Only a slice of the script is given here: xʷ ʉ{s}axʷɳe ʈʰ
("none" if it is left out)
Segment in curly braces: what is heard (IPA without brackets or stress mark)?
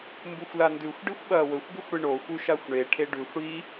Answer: ʃ